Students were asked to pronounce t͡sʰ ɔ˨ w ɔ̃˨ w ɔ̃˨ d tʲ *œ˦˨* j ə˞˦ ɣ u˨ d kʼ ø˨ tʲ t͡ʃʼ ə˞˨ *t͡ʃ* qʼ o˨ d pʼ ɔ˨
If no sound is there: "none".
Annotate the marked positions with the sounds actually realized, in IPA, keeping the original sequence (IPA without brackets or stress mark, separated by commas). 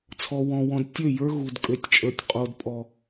ø˦˨, tʲ